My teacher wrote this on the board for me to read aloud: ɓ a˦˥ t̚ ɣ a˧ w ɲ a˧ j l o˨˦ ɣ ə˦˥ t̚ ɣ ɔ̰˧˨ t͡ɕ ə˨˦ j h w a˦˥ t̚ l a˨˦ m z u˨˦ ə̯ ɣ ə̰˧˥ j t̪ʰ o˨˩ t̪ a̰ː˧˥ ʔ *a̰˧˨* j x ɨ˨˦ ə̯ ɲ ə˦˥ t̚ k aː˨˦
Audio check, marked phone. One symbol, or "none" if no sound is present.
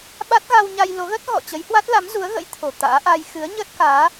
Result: a˧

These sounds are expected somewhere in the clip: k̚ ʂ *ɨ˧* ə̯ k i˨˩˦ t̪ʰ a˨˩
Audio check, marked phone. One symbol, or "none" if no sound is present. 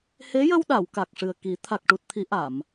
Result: ɨ˨˩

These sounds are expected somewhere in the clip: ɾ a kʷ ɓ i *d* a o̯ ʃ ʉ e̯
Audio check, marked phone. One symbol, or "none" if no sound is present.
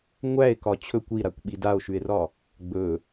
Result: d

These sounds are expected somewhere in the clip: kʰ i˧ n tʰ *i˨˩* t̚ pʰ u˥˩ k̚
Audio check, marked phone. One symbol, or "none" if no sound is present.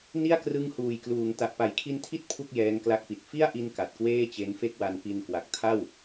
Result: i˥˩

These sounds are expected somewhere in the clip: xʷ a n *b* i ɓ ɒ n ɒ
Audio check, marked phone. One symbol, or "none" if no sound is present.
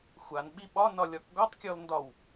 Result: ɓ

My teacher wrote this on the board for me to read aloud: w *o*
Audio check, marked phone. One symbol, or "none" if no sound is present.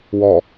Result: ɔ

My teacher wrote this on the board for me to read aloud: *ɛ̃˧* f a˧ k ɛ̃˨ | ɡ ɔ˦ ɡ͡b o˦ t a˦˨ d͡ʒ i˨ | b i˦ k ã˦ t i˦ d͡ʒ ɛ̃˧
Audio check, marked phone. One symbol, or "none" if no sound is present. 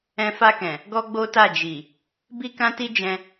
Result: ɛ̃˧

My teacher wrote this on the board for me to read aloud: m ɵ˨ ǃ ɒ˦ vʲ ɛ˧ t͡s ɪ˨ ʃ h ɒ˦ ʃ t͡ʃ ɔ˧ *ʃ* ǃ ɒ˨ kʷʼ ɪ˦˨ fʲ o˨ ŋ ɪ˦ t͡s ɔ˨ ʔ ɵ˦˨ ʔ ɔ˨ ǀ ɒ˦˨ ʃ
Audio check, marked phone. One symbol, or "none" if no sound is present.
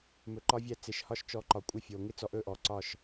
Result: none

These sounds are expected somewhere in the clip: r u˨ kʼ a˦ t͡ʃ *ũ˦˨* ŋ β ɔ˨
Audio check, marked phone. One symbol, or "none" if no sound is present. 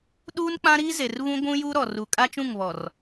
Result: ũ˦˨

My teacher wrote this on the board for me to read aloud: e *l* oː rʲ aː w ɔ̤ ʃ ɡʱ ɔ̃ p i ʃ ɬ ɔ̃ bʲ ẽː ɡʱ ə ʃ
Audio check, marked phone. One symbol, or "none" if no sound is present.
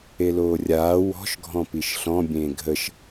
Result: l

